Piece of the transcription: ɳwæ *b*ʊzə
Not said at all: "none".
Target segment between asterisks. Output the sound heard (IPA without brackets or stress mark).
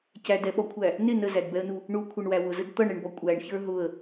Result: w